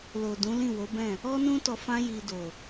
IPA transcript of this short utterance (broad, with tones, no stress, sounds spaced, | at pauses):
l o˨ d ũ˨˦ l ĩ˦˨ w o˨˦ b ɛ̃˦˨ | ɔ˦ n ũ˦ t ɔ˧ f ã˦ j i˧ d o˨